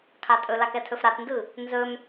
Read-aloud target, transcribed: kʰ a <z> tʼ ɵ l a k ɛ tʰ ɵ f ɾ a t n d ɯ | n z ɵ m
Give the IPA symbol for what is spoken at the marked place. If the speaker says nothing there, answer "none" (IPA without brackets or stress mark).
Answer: none